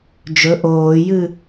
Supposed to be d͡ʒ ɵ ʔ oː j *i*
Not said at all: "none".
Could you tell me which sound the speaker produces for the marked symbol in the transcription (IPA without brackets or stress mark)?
ɨ